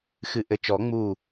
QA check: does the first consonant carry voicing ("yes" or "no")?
no